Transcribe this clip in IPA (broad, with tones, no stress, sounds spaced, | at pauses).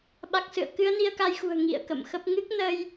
ɓ a˨˩ k̚ s ɨ̰˧˨ ə̯ k ɨ˨˦ ə̯ n i˧ ə̯ k a˧ j x ṳ˨˩ ə̯ ŋ ḭ˧˨ ə̯ k ə̰˧˨ m x ə˦˥ p̚ ŋ ɨ˦˥ k̚ n ə˧ j